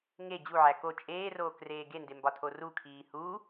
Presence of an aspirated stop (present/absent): present